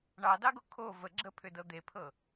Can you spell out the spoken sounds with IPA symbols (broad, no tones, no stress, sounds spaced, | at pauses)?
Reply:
ɳ ɑ d ɑ ɡ o kʰ o v ə ɡ͡ǁ ə pʰ ʏ d ɤ d̪ e pʰ ɤ